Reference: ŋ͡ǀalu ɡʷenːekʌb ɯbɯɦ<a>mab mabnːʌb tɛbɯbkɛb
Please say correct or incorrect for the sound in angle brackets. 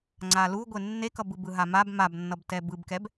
correct